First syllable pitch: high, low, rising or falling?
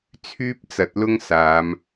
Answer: high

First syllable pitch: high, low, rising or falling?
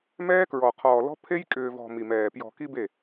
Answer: high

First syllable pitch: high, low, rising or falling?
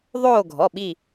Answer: falling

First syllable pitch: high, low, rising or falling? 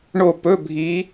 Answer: falling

